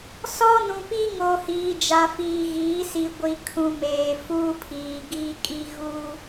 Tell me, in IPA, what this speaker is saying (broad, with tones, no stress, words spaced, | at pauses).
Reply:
sɔ˦nũ˨pi˦ŋo˨ hiː˨d͡ʒa˨fiː˨ɣiː˨˦ si˨ɡʷi˨kʰũ˨meː˨ fuː˦pʰiː˨ɡiː˦kʼi˦ ɣuː˦